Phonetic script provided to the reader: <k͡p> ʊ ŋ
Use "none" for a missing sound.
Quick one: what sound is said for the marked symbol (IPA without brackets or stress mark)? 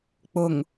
k͡p